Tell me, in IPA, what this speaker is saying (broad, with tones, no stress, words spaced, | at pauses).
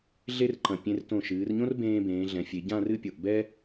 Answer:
ɮe˥rǃɐ̃˧˩ pʲẽ˧rtõ˧˩ʃɨː˩˧rɲõ˥r bẽː˧bẽː˩˧ ɮɛ̃˩˧fʲe˩˧ ɟã˥˧rɨ˥˧pʲo˧˩ʔ bɛ˥